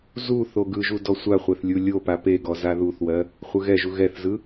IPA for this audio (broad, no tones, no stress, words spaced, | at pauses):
zu θoɡɯʒu dɔsʷaχʷɛθ lʲulʲopa peɡɔ zaðuθwɜ | χʷɯɣɛʒu ɣɛθzɯ